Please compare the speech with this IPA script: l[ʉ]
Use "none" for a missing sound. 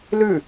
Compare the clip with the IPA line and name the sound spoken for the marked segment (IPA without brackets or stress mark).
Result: ʉ